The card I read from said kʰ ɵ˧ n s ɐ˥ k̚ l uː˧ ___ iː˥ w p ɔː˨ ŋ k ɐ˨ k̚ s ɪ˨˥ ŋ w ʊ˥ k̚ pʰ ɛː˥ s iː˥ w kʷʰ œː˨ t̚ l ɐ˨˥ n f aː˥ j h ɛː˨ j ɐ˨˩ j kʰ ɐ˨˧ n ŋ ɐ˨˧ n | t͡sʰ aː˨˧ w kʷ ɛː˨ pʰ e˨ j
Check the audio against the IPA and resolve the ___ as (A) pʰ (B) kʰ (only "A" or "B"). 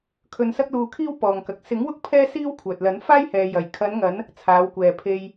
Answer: B